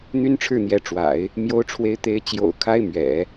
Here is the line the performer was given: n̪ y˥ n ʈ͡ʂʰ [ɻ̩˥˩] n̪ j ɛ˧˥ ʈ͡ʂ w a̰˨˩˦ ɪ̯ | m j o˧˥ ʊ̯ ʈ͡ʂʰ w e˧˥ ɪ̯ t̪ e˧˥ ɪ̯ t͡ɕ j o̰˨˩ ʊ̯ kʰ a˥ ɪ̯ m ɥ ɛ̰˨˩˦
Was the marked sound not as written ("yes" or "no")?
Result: no